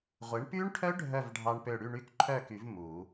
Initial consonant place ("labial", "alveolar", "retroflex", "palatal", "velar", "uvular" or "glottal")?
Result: uvular